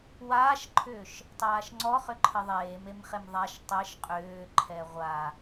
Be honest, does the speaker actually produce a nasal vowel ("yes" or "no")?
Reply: no